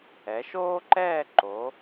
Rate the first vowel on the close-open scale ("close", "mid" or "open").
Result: mid